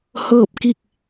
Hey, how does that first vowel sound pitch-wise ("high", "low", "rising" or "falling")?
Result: falling